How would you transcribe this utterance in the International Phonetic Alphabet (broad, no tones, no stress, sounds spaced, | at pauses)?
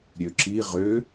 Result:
ɾʲ ø ǁ i ʁ ø